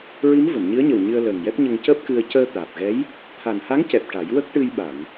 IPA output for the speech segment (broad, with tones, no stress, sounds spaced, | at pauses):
ɹ i˧˥ m v ə˨˩˨ m ɲ ɨ˧˥ ə̯ ɲ ə˨˩ w ɲ ɨ˧ ə̯ l əː˨˩ ŋ j ɛ˦˥ p̚ ɲ ə˧ ŋ c əː˦˥ p̚ k ɨ˧ ə̯ c əː˧ t̪ aː˨˩ p̚ ɣ ɛ˧˥ j | t̪ʰ a˨˩ n h a˧˥ ŋ c ɛ˨˩ p̚ ʈ a˨˩˦ j w ə˦˥ k̚ ʈ ɨ˧ j ɓ a˨˩˨ ŋ